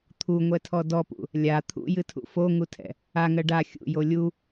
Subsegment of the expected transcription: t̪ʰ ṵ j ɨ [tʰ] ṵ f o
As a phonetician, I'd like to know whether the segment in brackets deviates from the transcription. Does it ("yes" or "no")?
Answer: no